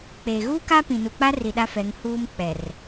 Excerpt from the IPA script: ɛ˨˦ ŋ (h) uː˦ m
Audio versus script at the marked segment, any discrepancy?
no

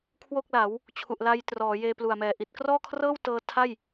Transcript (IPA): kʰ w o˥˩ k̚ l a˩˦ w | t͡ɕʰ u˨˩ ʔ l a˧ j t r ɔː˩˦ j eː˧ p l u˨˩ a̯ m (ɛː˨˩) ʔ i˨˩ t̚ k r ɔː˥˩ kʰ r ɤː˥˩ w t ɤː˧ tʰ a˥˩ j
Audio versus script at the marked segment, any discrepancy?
no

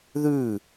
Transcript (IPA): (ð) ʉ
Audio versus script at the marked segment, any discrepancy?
no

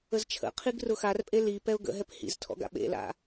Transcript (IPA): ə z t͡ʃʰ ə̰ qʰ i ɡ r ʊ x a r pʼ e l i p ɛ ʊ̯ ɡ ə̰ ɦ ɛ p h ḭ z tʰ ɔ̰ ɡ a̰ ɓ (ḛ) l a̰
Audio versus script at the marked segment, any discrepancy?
no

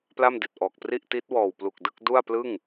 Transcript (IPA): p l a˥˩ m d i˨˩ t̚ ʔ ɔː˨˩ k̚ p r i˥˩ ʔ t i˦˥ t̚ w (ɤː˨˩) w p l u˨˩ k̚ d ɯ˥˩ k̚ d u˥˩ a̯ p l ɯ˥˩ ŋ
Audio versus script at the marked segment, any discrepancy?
yes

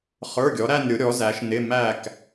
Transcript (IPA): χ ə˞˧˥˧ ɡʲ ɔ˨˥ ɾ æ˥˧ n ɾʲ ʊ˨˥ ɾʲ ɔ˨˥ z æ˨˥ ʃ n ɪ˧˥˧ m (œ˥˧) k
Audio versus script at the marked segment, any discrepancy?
yes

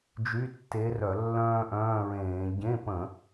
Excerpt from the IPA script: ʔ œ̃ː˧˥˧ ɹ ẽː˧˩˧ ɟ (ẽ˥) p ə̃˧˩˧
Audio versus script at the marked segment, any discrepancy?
yes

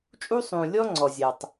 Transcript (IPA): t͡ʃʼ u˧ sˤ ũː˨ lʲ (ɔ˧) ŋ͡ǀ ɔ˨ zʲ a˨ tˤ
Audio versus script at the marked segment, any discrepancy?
no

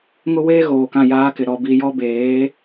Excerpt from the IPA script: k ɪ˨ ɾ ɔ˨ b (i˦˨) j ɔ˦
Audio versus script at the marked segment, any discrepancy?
yes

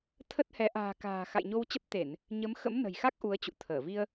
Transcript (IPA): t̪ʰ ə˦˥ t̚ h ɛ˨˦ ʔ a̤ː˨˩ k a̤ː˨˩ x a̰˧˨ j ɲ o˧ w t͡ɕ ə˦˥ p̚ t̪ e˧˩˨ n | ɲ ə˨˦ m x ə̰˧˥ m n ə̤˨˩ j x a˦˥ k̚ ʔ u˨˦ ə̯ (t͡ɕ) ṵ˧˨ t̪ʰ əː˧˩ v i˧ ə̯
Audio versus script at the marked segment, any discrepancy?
no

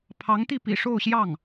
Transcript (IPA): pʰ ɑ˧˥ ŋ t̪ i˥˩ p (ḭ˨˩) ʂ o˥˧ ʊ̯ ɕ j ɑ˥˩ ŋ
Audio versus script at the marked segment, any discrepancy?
no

